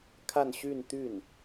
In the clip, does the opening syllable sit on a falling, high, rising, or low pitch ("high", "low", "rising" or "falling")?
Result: falling